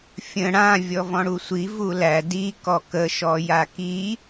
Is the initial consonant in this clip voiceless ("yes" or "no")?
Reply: yes